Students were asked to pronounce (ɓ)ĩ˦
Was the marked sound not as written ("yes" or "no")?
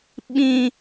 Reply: no